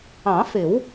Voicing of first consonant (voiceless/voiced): voiceless